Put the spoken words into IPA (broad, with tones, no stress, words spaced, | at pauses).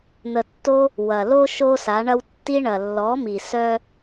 n̪ə˨tːo˧ | wɐ˨ lo˦ ʃo˦sa˨˦ɳɐ˦w tːi˧ɳɐ˨lːɔ˨˦mi˨ sœ˦